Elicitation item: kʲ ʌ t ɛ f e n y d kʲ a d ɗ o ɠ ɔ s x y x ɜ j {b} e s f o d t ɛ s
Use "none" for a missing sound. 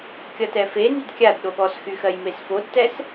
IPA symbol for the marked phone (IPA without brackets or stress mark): m